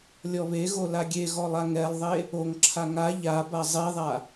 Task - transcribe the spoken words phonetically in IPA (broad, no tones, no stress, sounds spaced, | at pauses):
lʲ ɔ β e ɣ o l a ɡʲ e ɣ ɔ lˠ a ŋ ɛ lˠ ðˤ e | o ŋ ǁʰ a ŋ a ʎ a b a zˤ e ðˤ a